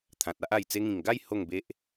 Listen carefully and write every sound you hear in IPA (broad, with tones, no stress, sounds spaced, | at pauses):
t̪ʰ ã˨ t̚ a˦ ʔ a˨˩ j t͡s e˧ ŋ ĩ˨˩ ŋ ɡ a˥˧ j h o˥˧ ŋ b e˦ ʔ